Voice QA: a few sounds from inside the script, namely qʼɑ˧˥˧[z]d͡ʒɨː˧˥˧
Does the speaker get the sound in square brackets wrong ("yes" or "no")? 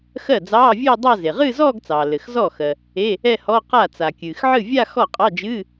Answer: yes